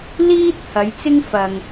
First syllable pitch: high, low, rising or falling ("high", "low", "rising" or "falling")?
high